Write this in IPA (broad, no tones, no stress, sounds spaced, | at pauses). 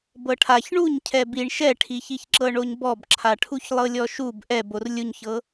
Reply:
b ɤ ʈʰ a ç ɳ u ɲ cʰ ɛ b i ɳ ʃ ɛ ʈʰ i ç i ç ǁ ɤ ɳ o ɲ b ɔ b ǁʰ a ʈʰ u ç lˠ ɤ lʲ ɔ ʃ u b ʔ ɛ b o r lʲ u ɲ ç ɤ